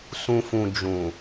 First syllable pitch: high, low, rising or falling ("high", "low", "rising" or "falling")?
low